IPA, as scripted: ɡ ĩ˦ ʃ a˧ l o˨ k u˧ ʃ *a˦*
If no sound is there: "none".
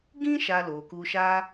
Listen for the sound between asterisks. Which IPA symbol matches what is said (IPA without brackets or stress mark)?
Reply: a˦